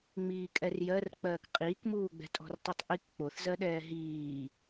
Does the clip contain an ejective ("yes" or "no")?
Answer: yes